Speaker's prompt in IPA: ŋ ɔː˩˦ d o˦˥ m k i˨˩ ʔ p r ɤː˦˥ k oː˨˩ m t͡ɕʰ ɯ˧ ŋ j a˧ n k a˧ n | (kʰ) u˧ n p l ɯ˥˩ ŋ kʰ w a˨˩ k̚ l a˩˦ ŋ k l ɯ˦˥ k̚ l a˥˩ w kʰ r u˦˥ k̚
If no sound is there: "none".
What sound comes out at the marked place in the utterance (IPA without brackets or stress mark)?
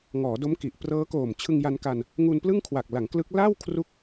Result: ŋ